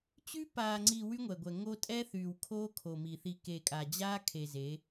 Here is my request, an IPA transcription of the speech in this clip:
t͡ɕ y˦ p aː˨ ŋ͡ǀ i˨ w y˦ ŋʷ ɛ˨ ɡʷ ɛ˨ ŋ o˦ tʼ ɛ˦ θ yː˨ w kʰ oː˦ kʰ o˨ m i˨ θ i˨ k e˨ kʼ a˨ d͡ʑ aː˦ kʰ e˨ z e˨˦

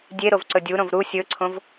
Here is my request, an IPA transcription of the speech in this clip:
dʲ e ɾ o v ǀ ɵ dʲ u ɾ õ v ɾ u sʲ ɵ ǀʰ õ v

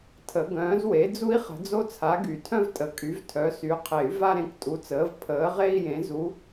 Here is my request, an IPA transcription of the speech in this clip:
tʰ ə˨˩˦ ɡ œ̃ː˨˥ z w e˨˥ d͡z u˥ i̯ χ ə̤˨˥ d͡z o˥ t͡sʰ a˨˥ ɡ y˨˩˦ tʰ œ̃˥ v tʼ ə˨˩˦ kʼ y˨˥ v tʰ œ˨˥ s y˨˥ qʰ e˨˩˦ y̯ v a˥ ɾ ẽ˨˥ k tʼ u˨˥ t͡s əː˨˥ v pʰ əː˨˥ ʁ e˥ i̯ j ẽ˨˥ z u˨˥

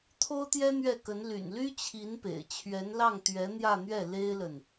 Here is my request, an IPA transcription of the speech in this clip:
t̪ʰ o˥ ʊ̯ t̪ j ɛ˥ n̪ ɥ ɛ˥˩ k ə˧˥ n l y̰˨˩ n l y˥ t͡ɕʰ i˧˥ n p ḛ˨˩ ɪ̯ t͡ɕʰ ɥ ɛ˧˥ n l ɑ˥˩ ŋ t̪ ɥ ɛ˧˥ n̪ j ä˥˧ n̪ ɥ ɛ˥˩ l e˥ ɪ̯ l ə˨ n

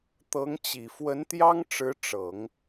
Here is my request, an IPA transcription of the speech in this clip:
t̪ ɤ˧˥ ŋ t͡ɕ i˨˩ f w ə˧˥ n t̪ j ɑ˥ ŋ ʈ͡ʂ ɻ̩˧˥ ʈ͡ʂ ɤ˨˩˦ ŋ

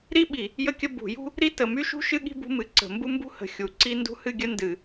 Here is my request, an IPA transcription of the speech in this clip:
ɾ i˥ ɓ i˨˩˦ | j ə˥ kʲ ə˥ b ṳ˨˩˦ j ṳ˥ | ɾ i˥ t ə˨˩˦ m y˥ ʃ ṳ˥ ʃ ɨ˥ ɠ i̤˥ b ṳ˥ m ɨ˨˩˦ ǀ ə̤˨˩˦ m b u˥ m b ṳ˥ h ə̤˨˩˦ xʲ u˨˩˦ ǀ i˥ n d ṳ˥ h ɨ˥ ɡʲ ə˥ n d ɨ˨˩˦

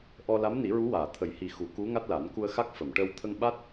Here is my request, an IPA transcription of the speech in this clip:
ʔ ɔ˧ l a˧˥ m n i˨˩˦ ɹ u˧˥ w aː˨˩˨ t̪ʰ ə˨˩˦ j h i˨˩ x u˨˩˦ k u˧˥ ŋ a˦˥ t̚ l a˨˩˦ n k u˧ ə̯ x a˦˥ k̚ f ə˨˩˨ m ʈ ə˧ w t̪ʰ ə˧ ŋ ɓ a˦˥ t̚

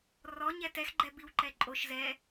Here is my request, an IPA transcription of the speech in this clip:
r ɔ ɲ ɛ t ɛ x ɡ͡ǃ ɛ b i w ǃ ɛ ǃʼ o ʃ z ɛ

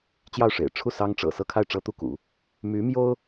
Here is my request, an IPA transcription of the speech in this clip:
t͡ɕ j ɑ˥˩ ʊ̯ ʂ ḛ˨˩ ɪ̯ ʈ͡ʂʰ u˥˩ s ɑ˥ ŋ ʈ͡ʂ ɤ̰˨˩ s ɤ˥˧ kʰ a˥˩ ɪ̯ ʈ͡ʂ ɤ˥ t̪ u˥˩ k ṵ˨˩˦ | m y˧˥ m j o˥ ʊ̯

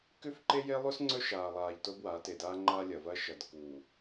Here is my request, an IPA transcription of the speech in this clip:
k ʉ˦ f ǃ e˦ j e˦ lˠ ʉ˦ s ŋ͡ǀ ɵ˦ ʃ aː˨ lˠ aː˨ ʎ t o˦ b w a˨˦ t e˨ d aː˦ ŋ͡ǃ a˦ lʲ ɐ˨ v ɐ˦ ʃ ɐ˨ d k uː˨

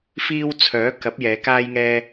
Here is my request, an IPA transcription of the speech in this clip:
f iː˧ w t͡sʰ œː˨˥ k ɐ˨˥ p̚ j ɛː˨˧ k aː˥ j ŋ ɛː˥

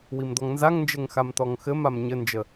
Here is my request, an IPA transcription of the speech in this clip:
w i m d̪ ɔ ŋ n z a ŋ n d͡ʒ ɘ ŋ x a m t̪ ɔ ŋ x ɘ m a m ɲ ɘ n d͡ʒ ə

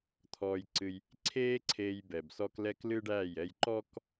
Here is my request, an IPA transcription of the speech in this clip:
t̪ʰ ɔː˧ j ǀ ɨ˧ j | ǀʰ eː˦ ǀʰ eː˧ j b ɛ˨ b s ɔ˧ k l ɛ˦ k l ɨ˦ ɖ æː˦˨ j ɛ˧ j ǃ ɔ˦ k

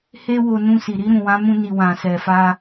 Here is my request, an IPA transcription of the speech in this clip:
h e˦ w o˧ n ũ˧ s i˨ ɾ i˧ ɾ ũ˨ w ã˨˦ m ũ˧ n i˨ w ã˨ s ɛ˨ f a˧

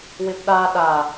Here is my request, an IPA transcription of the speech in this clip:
w ɪ p ɗ a ɗ a

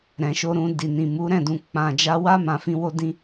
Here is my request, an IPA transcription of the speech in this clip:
ɾ ɛ̃˨ ʃ o˧ ɾ ũ˧ d i˨ n ĩ˨ m u˨˦ ɾ ɛ̃˦˨ d ũ˨ k͡p ã˨ d͡ʒ a˧ w a˦ m ã˧ f ĩ˦ w o˦ d ĩ˦

